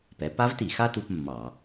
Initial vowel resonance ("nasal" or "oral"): oral